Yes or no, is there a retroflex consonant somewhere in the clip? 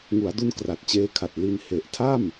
no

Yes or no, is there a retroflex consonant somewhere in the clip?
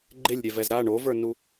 yes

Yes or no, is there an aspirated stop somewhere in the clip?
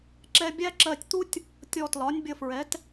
no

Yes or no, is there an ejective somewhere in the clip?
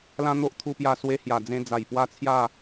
no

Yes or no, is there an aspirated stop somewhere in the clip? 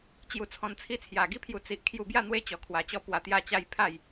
yes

